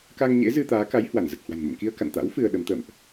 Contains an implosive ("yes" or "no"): yes